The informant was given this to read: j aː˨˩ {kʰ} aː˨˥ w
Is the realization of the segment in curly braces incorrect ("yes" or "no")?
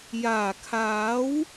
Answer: no